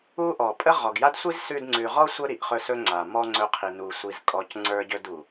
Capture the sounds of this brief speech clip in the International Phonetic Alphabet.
u˦ ʔ ɔ˨ pʼ ə˦ ʁ ɔ˨ ɡ j a˦ d sʷ i˦ z s ʉ˧ d ŋ͡ǀ ʉ˨ ʁ ɔ˦ sʷ ə˦ ɾ i˨ ʔ χ ɵ˧ s ɵ˦ ŋ͡ǀ a˨ m ɔ˦ ŋ͡ǀ ɵ˧ qʰ i˨ n u˨ sʷ i˨ z kʼ ɔ˨ c ŋ͡ǀ ə˞˧ ɟ ɵ˧ d u˨

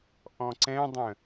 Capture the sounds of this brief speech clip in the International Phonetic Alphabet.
ʔ ɔ̃ ǀ ɛ̃ dˤ ə̃

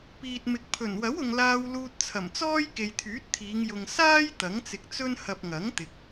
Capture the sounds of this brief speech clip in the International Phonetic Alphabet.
p iː˨ t̚ m ɪ˨ k̚ pʰ ɵ˨˩ n w ɐ˨˥ w ʊ˨ ŋ l aː˧ w l uː˧ t̚ t͡sʰ ɐ˨˩ m t͡s ɔː˥ j k e˨ j t̪ʰ yː˨˥ t̚ t̪ʰ iː˨˧ ŋ j ʊ˨ ŋ s aː˥ j t̪ ɐ˨˥ ŋ t͡s ɪ˧ k̚ t͡s ɵ˥ n h ɐ˨ p̚ ŋ ɐ˨˥ ŋ t̪ ɪ˨ k̚

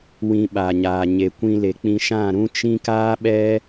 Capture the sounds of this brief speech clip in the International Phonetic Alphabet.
w ĩ˧ ɓ a˨ ɲ aː˨ ɲ e˨ kʷ ĩ˧ l e˨ k͡p ĩ˧ ʃ ã˦˨ ɾ ũ˦ t͡ʃ ĩ˦ k aː˦ ɓ ɛ˦

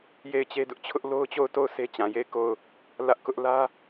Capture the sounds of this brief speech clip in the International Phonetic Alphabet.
j e˦˨ ɪ̯ t͡ɕ e˦ d ʊ˦ ʔ t͡ɕʰ ʊ˦ ʔ l o˦ ʊ̯ t͡ɕ o˦˨ ʊ̯ t o˦˨ ʊ̯ s e˦ t͡ɕ ã˨ j e˦˨ ɪ̯ k o˦˨ ʊ̯ | l ä˦ ʔ k ʊ˦ ʔ l ä˦

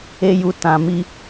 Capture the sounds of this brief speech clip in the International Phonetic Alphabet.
e˧ j u˨ t ã˨ m i˧

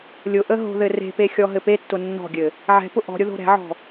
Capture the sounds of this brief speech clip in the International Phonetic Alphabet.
lʲ ʊ ʔ ə ɦ o̤ ð ɘ r e̤ p e xʲ ɔ ɦ ɘ p e tː ʊ nː ɔ̤ ɡʲ ɘ | ʕ ɛ̤ p ʊ ʔ ɔ̤ ɾʲ ʊ ð o̤ ɾ ɛ̤ ʕ ɔ̤

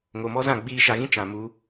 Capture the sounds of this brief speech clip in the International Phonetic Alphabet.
ŋ o˨ m ɔ˦ z ã˦˨ ɡ͡b iː˧ ʃ a˨ ɣ ĩ˦ t͡ʃ ã˨ m u˨˦

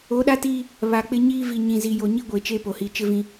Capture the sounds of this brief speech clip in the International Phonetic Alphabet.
o˨˦ ɗ a˦ t iː˦ | β a˨ k͡p ɪ˦ ɲ iː˦ v i˨ ɲ ĩ˨ z i˨ j o˨ ɲ i˦ ɡʷ e˨ t͡ʃ e˦ p o˨ h i˨ t͡ʃ ɪ˦ v ĩ˦

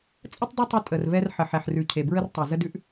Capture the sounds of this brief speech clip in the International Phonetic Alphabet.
t͡sʼ ə˦ tˤ dˤ ə˦ tˤ ə˦ tʼ ə˨ r v ɛ˦ r ħ ə˨ ħ ɛ˨ ħ r ʉ˨ cʰ e˨ b ɹ ə˦ r tˤ ɛ˨ z ə˦ d ʉ˦ ʔ

